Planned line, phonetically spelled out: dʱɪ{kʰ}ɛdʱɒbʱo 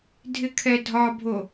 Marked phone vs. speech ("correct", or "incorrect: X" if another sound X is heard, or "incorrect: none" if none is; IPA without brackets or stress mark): correct